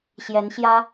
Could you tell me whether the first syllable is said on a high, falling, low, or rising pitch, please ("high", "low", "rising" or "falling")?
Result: rising